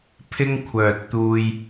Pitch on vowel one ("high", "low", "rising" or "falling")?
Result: high